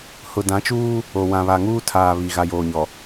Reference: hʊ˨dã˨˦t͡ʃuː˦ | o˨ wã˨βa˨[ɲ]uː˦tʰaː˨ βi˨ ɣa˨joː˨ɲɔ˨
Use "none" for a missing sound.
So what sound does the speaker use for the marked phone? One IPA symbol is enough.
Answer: ŋ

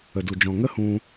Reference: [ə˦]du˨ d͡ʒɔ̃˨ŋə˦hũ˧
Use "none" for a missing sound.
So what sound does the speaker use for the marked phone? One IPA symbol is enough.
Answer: ə˨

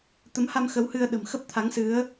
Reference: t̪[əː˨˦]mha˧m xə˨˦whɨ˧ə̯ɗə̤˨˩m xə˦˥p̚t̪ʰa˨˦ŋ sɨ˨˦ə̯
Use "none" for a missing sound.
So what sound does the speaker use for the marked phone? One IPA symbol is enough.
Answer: ə˨˦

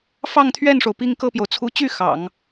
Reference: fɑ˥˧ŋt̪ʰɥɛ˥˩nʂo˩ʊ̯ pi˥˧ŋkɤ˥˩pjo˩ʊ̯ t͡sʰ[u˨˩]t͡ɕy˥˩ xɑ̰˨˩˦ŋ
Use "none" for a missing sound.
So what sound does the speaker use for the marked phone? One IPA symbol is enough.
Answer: u˧˥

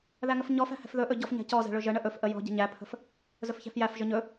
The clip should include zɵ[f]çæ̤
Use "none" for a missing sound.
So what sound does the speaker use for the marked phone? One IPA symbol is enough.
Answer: f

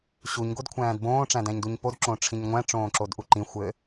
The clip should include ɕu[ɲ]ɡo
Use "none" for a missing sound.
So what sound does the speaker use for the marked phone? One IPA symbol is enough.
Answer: ɲ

